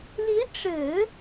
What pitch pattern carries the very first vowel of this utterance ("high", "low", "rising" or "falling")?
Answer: rising